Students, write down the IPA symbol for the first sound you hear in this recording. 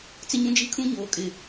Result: t͡s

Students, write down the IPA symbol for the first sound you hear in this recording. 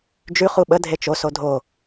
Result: d͡ʒ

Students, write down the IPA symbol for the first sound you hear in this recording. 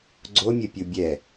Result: ɡ͡ǀ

